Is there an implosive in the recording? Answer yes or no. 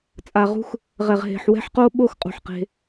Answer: yes